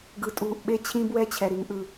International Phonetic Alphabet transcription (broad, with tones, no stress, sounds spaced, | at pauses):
ɡ ɯ˨ tʼ uː˨ ʔ ɓ e˦ t͡ɕʰ ĩ˦ b w ɛ˦ t͡ɕʰ ɛ˨ ɾ i˦ ŋ ʔ ɯ˦